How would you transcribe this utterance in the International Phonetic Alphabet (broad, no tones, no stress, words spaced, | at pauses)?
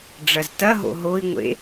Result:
ɖ͡ʐɐztɐɦo̰ ɦoi̯ŋʷḛ